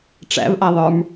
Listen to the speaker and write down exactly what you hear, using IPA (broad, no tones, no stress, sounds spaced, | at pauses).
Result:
ʈ͡ʂ æ̰ v ʔ a ðˤ ə˞ m